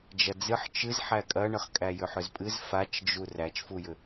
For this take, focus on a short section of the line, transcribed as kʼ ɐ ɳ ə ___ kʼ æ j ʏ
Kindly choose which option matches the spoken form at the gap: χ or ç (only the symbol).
χ